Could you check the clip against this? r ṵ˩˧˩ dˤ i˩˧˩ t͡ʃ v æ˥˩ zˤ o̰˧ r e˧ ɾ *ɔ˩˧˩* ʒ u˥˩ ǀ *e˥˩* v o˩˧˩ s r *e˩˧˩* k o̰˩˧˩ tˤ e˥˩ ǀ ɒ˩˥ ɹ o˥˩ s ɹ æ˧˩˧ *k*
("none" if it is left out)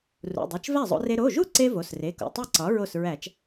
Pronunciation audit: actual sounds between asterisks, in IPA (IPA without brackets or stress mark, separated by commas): o˩˧˩, e˧, e˩˧˩, t͡ʃ